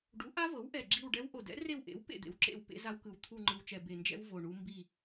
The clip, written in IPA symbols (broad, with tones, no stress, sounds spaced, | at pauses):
ɖ u˩˥ ʔ a˦˥ v ɤ˩˥ w ʔ ɛ˨˩ ɡ͡ǁ i˦˨ w ɖ ɛ˦˥ w ʔ o˨˩ d ɛ̰˩˥ r e˦˨ w ʔ ḛ˩˥ w p ḛ˦˨ d̪ ḛ˨˩ w ǁ ḛ˦˨ w p ḛ˦˥ z a˦˥ w k ɯ˨˩ w t̪ʰ u˦˨ ŋ͡ǃ ɯ˨˩ w t͡ʃ ɛ˨˩ b e˨˩ n d͡ʒ ɛ̰˦˥ w v o˨˩ ɳ u˦˥ m b i˦˨